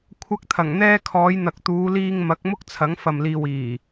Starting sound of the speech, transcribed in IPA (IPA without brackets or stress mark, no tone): kʷʰ